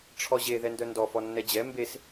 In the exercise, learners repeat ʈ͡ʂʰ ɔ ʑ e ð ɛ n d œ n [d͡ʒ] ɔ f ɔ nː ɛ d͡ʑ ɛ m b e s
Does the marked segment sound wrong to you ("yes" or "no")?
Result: yes